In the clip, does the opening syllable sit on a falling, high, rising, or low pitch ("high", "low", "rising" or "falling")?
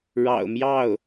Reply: low